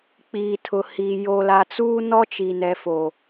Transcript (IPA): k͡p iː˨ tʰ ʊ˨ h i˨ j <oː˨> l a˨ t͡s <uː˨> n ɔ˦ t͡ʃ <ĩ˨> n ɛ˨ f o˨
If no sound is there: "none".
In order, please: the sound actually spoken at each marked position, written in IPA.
o˨, uː˦, i˨

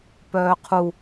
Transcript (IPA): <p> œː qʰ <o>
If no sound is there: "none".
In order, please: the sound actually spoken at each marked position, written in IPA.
p, u

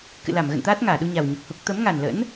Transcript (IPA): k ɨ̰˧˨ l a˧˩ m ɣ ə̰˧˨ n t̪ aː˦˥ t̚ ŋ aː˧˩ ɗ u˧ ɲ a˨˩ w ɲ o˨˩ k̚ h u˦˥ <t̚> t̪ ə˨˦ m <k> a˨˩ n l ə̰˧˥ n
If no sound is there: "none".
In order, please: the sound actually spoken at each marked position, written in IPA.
k̚, ŋ

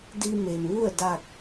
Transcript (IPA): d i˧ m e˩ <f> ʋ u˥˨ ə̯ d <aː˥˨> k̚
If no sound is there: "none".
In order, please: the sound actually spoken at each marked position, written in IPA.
m, a˥˨

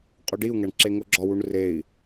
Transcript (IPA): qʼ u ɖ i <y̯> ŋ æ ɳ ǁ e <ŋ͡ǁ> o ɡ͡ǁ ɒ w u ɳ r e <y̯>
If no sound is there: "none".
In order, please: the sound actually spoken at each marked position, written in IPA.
u̯, ŋ, i̯

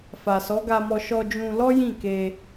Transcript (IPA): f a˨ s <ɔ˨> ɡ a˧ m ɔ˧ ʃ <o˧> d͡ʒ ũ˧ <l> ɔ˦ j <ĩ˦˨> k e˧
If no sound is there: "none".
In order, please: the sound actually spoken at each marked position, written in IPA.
ɔ˨˦, ɔ˧, l, ĩ˦˨

